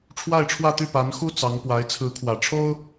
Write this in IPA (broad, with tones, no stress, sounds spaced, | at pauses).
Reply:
ʈ͡ʂʰ w a˥˧ ɪ̯ ʈ͡ʂʰ w ä˥˧ t̪ y˥˩ p a˧˥ n x u˥ t͡s ɑ˧˥ ŋ p w a˧˥ ɪ̯ t͡sʰ ɹ̩˧˥ kʰ w ä˨˩ ʈ͡ʂʰ o˥ ʊ̯